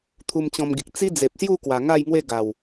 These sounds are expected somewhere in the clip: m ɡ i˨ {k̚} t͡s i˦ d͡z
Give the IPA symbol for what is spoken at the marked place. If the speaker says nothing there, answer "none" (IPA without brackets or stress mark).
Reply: k̚